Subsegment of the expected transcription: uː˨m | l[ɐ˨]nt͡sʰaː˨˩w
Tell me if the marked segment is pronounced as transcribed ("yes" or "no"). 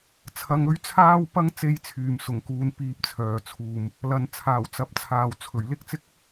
yes